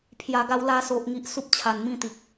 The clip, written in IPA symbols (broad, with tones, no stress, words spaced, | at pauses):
pʰja˨˩ɡa˧w la˧so˨ʔŋi˨ʔ su˦p̚t͡ɕʰa˨˩nmĩ˦t̪i˨k̚